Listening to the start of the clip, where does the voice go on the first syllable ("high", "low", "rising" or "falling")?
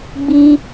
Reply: high